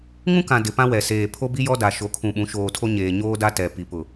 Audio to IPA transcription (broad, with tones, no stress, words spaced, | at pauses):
ŋũ˦kã˨ dɪ˨pã˦wɛ˨seː˨ pʰo˦bi˦jɔ˦ da˨ ʃo˨kʰũ˨ɓũ˨˦ ʃoː˨tʰo˦ɲeː˨ ɲoː˦da˦ tɛ˨ pi˨ pʊ˨